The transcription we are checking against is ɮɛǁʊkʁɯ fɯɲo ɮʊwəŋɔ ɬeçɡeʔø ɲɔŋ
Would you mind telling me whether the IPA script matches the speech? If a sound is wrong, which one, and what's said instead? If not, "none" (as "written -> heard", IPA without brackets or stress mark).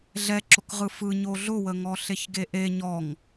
ø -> e